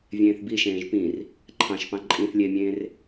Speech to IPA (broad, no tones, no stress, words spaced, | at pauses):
vʲẽːθbiʃẽːʒ pĩr | ǃʰɑ̃ʃpɑ̃ ǃʼĩθ lʲemʲẽːr